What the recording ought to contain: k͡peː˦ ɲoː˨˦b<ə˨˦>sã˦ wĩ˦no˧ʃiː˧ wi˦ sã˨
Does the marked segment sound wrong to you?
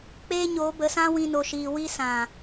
no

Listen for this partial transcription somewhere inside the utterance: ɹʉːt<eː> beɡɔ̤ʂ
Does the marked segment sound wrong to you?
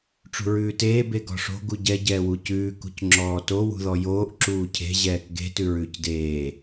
no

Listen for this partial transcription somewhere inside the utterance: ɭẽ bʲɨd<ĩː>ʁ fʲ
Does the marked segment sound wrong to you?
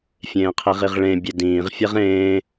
no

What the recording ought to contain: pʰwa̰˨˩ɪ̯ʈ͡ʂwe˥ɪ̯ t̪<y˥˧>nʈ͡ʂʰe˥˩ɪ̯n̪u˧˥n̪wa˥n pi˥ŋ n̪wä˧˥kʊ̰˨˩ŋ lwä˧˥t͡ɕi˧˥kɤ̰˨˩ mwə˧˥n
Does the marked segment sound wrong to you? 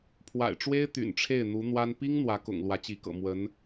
yes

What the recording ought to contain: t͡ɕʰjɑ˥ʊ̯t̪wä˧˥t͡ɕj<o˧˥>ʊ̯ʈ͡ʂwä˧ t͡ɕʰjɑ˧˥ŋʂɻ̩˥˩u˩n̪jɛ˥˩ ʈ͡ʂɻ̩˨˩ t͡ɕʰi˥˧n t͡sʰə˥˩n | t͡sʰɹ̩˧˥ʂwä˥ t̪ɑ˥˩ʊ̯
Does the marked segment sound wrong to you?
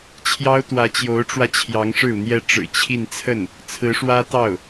no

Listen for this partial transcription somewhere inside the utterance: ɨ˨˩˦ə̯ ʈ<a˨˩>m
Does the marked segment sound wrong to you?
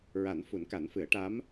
yes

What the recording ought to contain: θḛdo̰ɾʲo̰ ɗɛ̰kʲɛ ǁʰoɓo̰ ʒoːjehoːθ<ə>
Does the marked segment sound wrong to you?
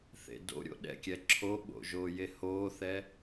yes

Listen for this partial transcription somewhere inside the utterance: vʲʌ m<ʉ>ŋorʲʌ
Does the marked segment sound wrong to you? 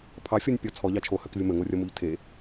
yes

